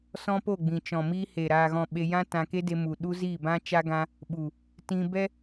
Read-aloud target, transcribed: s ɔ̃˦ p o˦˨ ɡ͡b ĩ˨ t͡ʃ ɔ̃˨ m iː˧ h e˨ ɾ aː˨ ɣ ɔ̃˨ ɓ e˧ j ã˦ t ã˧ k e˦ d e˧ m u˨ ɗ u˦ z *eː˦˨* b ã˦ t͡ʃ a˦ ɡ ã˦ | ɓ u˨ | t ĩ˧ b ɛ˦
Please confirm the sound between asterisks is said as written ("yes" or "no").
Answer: no